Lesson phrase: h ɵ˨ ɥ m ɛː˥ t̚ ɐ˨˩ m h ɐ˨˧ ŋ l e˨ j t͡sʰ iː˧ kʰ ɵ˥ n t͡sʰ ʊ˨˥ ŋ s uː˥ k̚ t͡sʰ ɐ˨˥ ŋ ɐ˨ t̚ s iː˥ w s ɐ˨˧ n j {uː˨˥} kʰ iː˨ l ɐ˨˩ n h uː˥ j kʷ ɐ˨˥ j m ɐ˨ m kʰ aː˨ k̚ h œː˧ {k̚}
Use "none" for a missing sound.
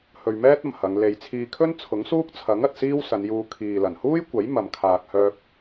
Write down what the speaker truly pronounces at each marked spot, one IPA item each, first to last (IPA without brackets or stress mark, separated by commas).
uː˧, k̚